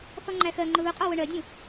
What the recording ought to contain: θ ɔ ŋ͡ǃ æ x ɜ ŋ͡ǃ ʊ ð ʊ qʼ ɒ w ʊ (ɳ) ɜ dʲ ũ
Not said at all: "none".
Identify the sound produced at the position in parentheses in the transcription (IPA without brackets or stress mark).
ɳ